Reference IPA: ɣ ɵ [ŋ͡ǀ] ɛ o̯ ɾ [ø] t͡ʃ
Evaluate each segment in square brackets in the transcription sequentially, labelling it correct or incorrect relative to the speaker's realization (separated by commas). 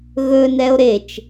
incorrect, incorrect